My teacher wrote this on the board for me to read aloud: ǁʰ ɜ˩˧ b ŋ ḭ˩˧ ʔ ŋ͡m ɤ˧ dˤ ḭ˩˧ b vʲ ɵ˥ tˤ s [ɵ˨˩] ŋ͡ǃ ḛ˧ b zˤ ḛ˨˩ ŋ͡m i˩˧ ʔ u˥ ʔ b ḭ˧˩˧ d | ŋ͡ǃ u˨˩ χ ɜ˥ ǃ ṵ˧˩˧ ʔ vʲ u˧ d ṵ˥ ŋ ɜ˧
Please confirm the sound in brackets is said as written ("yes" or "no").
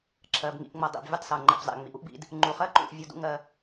no